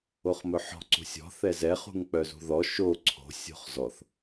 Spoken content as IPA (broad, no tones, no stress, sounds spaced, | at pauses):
o χ m ɵ ħ ɔ̤ ǀ ṳ sʲ ɔ̤ θ ɛ z ɛ χ ṳ ŋ k͡p œ z ṳ ð ɔ ʃ o ǀʰ o̤ sʲ o̤ χ z ɔ θ